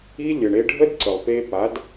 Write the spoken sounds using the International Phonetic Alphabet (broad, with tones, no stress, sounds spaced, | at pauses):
i˦ lʲ ə˨ ɳ e˧ ɖʱ ə˦ d ǀ ə˨ lˠ p e˧ p a˨˦ d